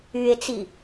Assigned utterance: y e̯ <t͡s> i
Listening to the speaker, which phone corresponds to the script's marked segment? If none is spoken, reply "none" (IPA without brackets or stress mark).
t͡s